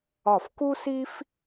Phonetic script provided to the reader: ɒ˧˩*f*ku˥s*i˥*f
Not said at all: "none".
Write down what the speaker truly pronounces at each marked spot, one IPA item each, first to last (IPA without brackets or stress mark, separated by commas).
f, i˥